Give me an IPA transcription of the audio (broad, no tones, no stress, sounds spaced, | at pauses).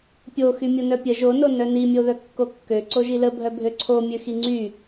pʲ o x y mʲ o n œ pʲ ə ʒ o n o n œ n i mʲ o ð œ kː o kː ø ǀ o ʒ i l ə bʱ œ bʱ ø ǀʰ o mʲ ø x i ŋ͡ǀ y